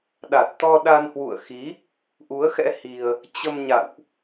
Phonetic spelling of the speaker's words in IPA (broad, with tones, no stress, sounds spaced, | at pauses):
ɗ a˨˩ t̚ t̪ ɔ˧ ɗ a˧ n h w ṵ˧˨ ə̯ x i˨˦ | ʔ u˨˦ ə̯ x ɛ̰˧˥ h i˧ ə̯ | t͡ɕ ə˧ m ɲ a̰˧˨ w ʔ